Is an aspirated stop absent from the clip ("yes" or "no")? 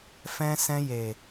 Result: yes